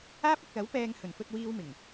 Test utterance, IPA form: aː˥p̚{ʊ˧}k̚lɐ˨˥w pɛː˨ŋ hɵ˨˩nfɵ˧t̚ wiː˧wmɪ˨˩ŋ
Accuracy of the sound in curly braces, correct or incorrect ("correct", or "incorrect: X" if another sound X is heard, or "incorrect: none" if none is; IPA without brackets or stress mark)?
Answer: incorrect: ʊ˨